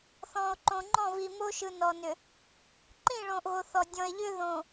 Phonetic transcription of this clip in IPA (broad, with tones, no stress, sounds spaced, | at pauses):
θ ɔ̃˨ o̯ ǃ õ˨ ŋ͡ǃ ɔ̃˦˨ v i˨ m o˦ ʃ ɯ˨ n ɔ˨ n ʏ˨ | ǃ ĩ˦˨ ɭ õ˨ ʔ ɣ o˨ θ ɔ˨ dʲ ɔ̃˨ e̯ ʎ ʏ˦ ð õ˨